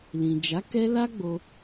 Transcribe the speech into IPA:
l ĩ˨ d͡ʒ a˨˦ k ɛ˦ l a˦ ɡ͡b o˧

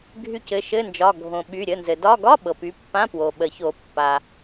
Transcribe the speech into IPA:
ɡʱ y˦˨ c ɘ˩˧˩ ʃ ɘ˧˥˧ n d͡ʒ ɒ˩˧˩ ɡʱ õ˩ ɓ y˩˧˩ ɾʲ ə˩˧˩ n z ɘ˩ d ɒ˧˥˧ ɡ ɒ˧˥˧ ɓ ɤ˩ p y˩˧˩ pː ã˧˥˧ p w o˩ ɓ ə˨˩˦ ç o˨˩˦ pː a˩

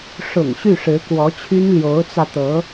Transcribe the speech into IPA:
ʂ ʊ̰˨˩ ŋ ɕ y˥˩ ʂ ɻ̩˧˥ k w ɔ˧˥ t͡ɕʰ y˥ n l j o˧˥ ʊ̯ t͡s ä˧ t̪ ɤ˧˥

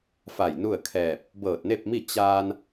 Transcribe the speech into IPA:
f a˧˩ j n u˥˨ ə̯ kʰ ɛː˧˩ p̚ | b ɤː˧˩ t̚ n e˥˨ p̚ m i˥˨ t͡ɕ aː˧ n

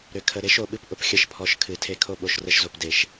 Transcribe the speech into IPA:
ɾ ʏ˨ kʰ ə˨ ɾ e˦ ʃ o˨ ɓ ɨ˦ p ʔ ʊ˨ p xʲ ə˦˨ ʃ pʰ ɔ˨˦ ʃ kʰ ɨ˨ tʰ e˦ kʰ o˦ ɓ o˨ ʃ r ə˦ ʃ z o˨ p d e˨ ʃ

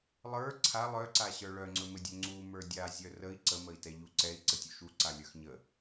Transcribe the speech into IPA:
lˠ ə˞ ǀʰ a lˠ œ ǀ a ɕ ə˞ ɭ œ ŋ͡ǀ ɵ m ɘ dʲ ɵ ŋ͡ǀ u m ə˞ dʲ a zʲ œ r ə i̯ ǀ ə m ə i̯ t ɛ ʎ u ǀ ɛ i̯ ǀ ə tʲ u ʃ u ǀ a lʲ ə˞ x ɲ ə

